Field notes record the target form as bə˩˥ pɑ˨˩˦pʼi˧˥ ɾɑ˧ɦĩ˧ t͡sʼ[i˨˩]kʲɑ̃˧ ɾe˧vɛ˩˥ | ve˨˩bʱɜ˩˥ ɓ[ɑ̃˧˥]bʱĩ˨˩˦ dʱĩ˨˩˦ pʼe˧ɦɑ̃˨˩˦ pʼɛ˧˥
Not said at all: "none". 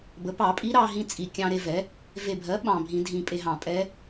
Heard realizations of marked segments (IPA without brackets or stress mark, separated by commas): i˨˩, ɑ̃˨˩